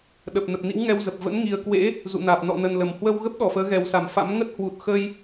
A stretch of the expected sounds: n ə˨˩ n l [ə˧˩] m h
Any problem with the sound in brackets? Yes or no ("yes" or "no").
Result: no